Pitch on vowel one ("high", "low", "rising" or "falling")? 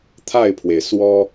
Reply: falling